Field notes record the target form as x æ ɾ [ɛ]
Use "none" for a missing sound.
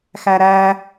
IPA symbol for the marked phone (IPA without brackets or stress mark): æ